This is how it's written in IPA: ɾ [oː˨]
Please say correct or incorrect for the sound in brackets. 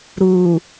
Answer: incorrect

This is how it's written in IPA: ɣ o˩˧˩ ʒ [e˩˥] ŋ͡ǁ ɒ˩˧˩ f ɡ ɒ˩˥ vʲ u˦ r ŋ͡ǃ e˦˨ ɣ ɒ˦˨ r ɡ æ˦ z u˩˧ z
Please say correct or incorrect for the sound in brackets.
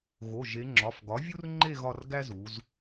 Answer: incorrect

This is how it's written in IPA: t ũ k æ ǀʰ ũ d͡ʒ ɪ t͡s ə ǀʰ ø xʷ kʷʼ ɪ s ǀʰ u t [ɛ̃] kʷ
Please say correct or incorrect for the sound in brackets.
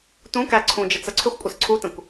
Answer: incorrect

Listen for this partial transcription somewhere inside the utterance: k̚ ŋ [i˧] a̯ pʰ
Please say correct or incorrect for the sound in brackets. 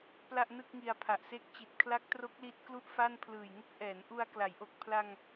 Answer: correct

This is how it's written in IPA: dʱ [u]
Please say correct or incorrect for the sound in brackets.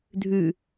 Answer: incorrect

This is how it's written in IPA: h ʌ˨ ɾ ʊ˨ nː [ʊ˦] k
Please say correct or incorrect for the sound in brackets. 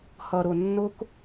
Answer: correct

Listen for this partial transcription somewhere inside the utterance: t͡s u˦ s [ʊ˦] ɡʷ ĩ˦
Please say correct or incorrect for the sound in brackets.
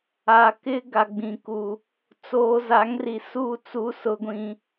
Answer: correct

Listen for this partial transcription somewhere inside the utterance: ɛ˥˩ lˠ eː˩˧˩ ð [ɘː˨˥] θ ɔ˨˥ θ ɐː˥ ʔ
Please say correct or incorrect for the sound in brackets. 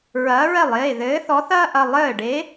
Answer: correct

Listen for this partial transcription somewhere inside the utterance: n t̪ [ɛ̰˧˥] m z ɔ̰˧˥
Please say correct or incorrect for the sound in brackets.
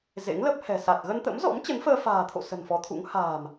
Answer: incorrect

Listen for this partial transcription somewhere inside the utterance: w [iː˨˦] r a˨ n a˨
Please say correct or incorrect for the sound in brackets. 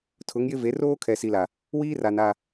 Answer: incorrect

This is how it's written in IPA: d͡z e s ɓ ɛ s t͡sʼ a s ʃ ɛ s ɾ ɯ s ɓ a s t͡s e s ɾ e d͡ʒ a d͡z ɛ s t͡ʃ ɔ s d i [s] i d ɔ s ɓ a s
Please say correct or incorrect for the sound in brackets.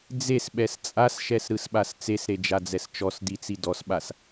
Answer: incorrect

